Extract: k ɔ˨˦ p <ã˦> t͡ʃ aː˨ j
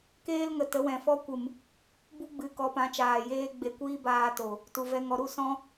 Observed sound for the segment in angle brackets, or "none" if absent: ã˨˦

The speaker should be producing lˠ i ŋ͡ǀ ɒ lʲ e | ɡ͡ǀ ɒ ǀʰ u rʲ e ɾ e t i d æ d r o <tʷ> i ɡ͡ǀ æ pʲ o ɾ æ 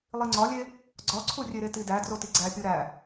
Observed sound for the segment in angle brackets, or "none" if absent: t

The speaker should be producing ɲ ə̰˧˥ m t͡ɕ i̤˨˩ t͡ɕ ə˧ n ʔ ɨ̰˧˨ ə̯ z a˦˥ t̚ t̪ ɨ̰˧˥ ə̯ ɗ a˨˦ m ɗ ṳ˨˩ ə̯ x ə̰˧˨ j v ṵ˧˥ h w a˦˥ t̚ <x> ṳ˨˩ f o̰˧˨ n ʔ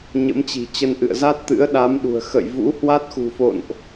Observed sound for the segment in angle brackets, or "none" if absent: x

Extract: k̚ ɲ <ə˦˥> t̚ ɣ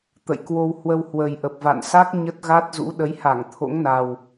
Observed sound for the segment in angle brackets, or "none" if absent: ə˦˥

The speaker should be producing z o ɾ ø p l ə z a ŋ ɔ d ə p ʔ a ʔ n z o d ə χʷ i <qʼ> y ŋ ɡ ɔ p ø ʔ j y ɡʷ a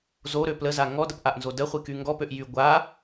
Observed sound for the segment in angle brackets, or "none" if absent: k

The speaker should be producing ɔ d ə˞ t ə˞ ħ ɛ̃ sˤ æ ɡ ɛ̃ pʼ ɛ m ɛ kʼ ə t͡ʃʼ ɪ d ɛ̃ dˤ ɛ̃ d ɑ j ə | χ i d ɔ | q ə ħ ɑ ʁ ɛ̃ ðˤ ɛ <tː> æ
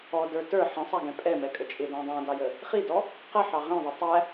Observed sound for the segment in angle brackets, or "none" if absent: tˤ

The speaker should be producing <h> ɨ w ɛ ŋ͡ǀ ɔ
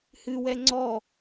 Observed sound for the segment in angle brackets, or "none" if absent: h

